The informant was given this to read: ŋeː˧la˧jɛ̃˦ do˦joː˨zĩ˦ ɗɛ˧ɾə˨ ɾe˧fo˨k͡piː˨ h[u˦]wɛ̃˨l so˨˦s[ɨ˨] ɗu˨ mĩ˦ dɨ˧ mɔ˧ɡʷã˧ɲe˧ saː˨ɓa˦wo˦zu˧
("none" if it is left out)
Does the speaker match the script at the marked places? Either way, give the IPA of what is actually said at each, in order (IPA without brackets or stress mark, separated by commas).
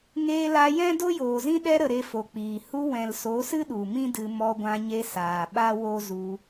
u˧, ɨ˦